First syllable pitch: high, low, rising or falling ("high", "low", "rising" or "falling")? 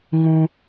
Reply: low